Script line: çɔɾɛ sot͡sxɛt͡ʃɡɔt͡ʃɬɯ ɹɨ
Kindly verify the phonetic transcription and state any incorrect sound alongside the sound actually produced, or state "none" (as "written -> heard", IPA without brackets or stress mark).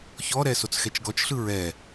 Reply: ɨ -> ɛ